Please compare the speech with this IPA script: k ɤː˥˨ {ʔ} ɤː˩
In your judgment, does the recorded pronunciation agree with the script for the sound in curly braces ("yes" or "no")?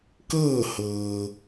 no